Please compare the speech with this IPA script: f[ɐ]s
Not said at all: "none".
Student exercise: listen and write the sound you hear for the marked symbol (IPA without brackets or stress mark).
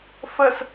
ə